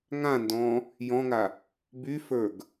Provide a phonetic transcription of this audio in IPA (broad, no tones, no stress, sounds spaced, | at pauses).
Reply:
ŋ ã n d ɔ̃ | j ɔ̃ ŋ a | b y f ə˞ ɡ